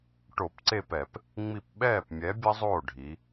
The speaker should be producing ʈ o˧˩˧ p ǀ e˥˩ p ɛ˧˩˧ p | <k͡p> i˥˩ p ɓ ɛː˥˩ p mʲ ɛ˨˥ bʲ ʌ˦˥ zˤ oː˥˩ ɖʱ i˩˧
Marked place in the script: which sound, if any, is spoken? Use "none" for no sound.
ŋ͡m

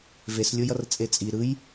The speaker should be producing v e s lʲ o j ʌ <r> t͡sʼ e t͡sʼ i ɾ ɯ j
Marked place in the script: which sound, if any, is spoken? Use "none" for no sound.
r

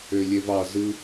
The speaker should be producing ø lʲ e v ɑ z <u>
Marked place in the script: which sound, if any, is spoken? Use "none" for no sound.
ɯ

